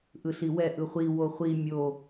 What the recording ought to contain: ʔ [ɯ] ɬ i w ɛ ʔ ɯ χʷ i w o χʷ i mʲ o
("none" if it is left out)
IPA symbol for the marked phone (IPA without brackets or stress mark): ɯ